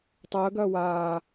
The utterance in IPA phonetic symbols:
tˤ əː ɡ ɐː w aː

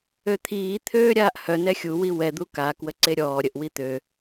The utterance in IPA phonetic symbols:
ø t̪ʰ iː t̪ʰ øː ɾʲ aː ʔ h œ n ɛ xʲ u w i w ɛ d̪ u k a k w ə ǀ e ɾʲ ɔː ɾʲ ə ʔ w i t̪ ø

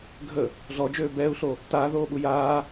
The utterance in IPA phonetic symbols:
ɡʱ ə | ɮ ɔ d͡ʒ øː b ɛː u̯ ɬ o | t aː ð oː ɓ u j aː

